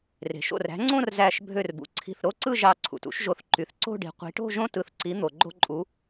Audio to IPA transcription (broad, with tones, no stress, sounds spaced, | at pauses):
r e̤˩ ʃ o̰˧˩ r æ̤˨˦ ŋ͡ǀ õ˥˧ r z æ˧˩ ʃ bʱ ø˧˩ r b ṵ˩ ǀʰ i̤˧˩ θ ɾ o˥˧ ǀ ɯ˥˧ ʒ ɑ˧˩ ǀʰ ṵ˩ t ṵ˨˦ ʃ ʒ o˨˦ θ ǃ y˩ θ ǀ o̤˥˧ ɖ i̤˨˦ qʷ i̤˨˦ ʈ o̤˥˧ ʒ õ˥˧ t ɯ˨˦ θ ǀ i˨˦ n̪ o˩ ɡ͡ǃ o̤˥˧ ǃʼ u˨˦